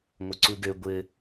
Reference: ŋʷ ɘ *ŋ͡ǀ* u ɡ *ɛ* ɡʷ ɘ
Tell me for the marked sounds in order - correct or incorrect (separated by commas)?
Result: incorrect, incorrect